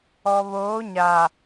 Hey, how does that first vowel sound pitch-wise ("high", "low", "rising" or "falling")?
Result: low